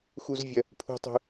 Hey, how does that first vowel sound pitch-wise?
high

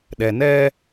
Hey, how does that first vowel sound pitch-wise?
low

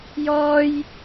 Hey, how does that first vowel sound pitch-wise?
high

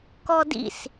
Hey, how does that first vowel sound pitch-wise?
high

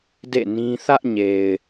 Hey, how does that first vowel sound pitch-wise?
falling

